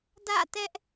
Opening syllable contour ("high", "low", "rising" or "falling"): falling